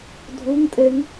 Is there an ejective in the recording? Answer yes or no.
yes